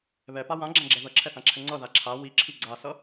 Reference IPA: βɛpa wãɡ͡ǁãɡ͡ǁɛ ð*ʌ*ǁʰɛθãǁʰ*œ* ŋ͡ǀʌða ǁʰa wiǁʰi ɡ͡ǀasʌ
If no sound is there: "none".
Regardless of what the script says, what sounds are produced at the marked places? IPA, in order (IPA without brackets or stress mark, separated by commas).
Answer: ʌ, ɛ